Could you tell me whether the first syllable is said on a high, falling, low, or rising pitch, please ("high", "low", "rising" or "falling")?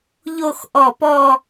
falling